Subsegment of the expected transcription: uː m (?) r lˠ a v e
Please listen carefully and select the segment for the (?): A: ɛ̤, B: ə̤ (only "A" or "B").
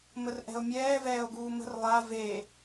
B